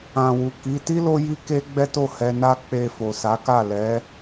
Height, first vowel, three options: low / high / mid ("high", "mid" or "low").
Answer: low